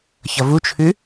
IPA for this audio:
ç ʌ v u t͡ʃʰ ʉ

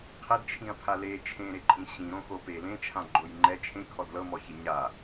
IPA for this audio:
qʰ e d t͡ʃʰ ĩ ɐ̯ pʰ a l e t͡ʃʰ ẽ ɾ e ǃʼ ĩ ɕ ĩ ɾ õ x o p e l ẽ t͡ʃʰ ã ɡ͡ǃ o j ŋ͡ǃ ɛ t͡ʃʰ ẽ kʰ ɔ d l ɤ m ɔ ç i ɲ a

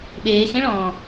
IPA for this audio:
ɓ eː x ẽ ɭ ɔ̃ː

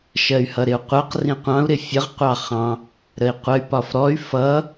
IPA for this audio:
ʃ ɜ y̯ h ʌ ɾ ɪ u̯ qʷ ɜ q r ĩ qʷ ɑ̃ u̯ ɾ ɪ fʲ ə ʁ qʷ ɑ χ ɑ̃ | ɾ ə i̯ qʷ ə y̯ p ɒ f ɾ ɔ y̯ f ʌ

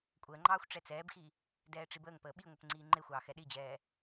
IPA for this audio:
kʷʼ əː ŋ͡ǃ ɑː xʷ ʈ͡ʂ ɛ t͡s ɛː b x i | d ɛː ʈ͡ʂ i b əː ŋ p əː ɓ i ŋʷ ə p ŋ͡ǀ iː ŋ͡ǃ e xʷ ɑː x ɛ ɗ i d͡ʑ ɛː

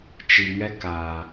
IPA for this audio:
t͡ʃ i˨ ŋ ɛ˦ k aː˨

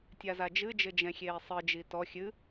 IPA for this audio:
tʲ a z a d͡ʒ ɨ d͡ʒ ɘ d͡ʒ ɛ̃ xʲ eː sˤ ɨ d͡ʒ i t ɔ xʲ ɨ

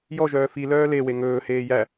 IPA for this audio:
j ɔ ʒ œː f i l œː l e w e ŋ ɵː h eː j æ

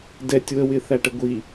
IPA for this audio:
d ɛ tʲ w ə w ɪ θ æ ʈ ə ɡʷ i

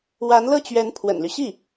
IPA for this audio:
w a˧˥ n l ɤ˥˩ t͡ɕ ɥ ɛ˧˥ n pʰ w ə̰˨˩ n l y˦ ɕ i˥˩

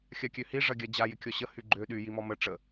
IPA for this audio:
xʲ a kʲ ø h i ʐ ɐ ɡʲ a d͡ʑ a j ɪ kʲ ɔ ɕ ə h y ɡ͡ǃ ø ɗ y j i m ɔ m ə ʈ͡ʂ ə

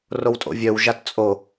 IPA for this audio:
r o w tʼ o̰ vʲ œ w ʒ a t t͡sʼ o

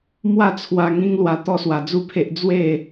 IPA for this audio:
m w a˥˧ t͡sʰ w a˧ ŋ ĩ˦ ŋ l w a˧ t̪ ɔ˥˧ s w a˧ d͡z u˥˧ pʰ e˦ ʔ d͡z w e˥˧

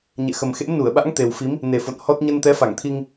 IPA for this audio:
ɲ ɛ̰˧˨ x ə˨˩ m x ḛ˧˥ m n u˧˩ ə̯ ɓ a̰˧˥ ŋ t̪ e˨˩ w f i˨˦ m | n e˨˩ f o̰˧˨ n h ɔ˦˥ t̚ ɲ ə˧ n t̪ ɛ˨˦ f a˧˩ ŋ t̪ʰ i˧ ŋ

